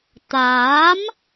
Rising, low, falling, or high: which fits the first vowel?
rising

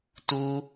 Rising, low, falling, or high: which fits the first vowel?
high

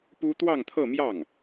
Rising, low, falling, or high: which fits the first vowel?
high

